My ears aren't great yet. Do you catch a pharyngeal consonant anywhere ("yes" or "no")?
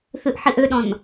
yes